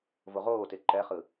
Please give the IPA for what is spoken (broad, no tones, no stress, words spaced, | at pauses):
voʁoːte ǃɛχɯ